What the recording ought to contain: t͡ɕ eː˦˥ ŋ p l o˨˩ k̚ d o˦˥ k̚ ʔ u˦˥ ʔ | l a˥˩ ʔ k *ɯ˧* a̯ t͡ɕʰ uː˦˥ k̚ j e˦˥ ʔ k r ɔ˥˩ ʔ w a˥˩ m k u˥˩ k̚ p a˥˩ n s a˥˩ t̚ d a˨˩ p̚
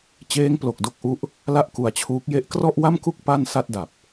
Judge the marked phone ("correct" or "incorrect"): incorrect